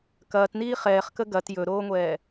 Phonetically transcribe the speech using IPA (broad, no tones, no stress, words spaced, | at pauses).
kɐːtniː χɛːχkə ɡɐt jɵɾoːŋʷɛː